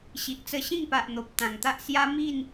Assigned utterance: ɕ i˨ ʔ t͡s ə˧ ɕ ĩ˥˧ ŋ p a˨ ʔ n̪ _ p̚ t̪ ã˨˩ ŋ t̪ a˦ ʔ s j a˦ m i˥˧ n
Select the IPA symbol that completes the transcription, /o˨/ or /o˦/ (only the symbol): o˨